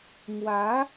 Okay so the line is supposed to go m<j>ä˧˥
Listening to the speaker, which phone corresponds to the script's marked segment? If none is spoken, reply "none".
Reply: w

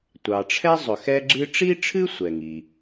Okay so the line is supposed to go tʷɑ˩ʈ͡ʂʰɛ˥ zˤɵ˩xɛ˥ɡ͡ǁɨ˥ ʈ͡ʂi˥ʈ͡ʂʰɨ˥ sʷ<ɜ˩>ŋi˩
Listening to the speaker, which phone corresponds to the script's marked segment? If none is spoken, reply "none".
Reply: ɛ˩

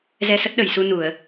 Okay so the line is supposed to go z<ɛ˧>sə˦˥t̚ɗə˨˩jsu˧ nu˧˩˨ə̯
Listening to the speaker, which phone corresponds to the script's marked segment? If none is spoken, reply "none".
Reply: ɛ˧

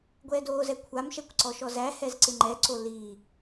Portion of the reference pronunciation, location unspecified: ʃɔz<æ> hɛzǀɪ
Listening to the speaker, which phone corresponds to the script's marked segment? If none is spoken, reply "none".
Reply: æ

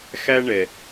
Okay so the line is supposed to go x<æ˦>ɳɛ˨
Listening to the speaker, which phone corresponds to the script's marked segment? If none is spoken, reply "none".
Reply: æ˦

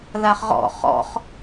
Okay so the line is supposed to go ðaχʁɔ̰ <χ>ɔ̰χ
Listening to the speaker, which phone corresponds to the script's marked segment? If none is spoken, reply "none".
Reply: χ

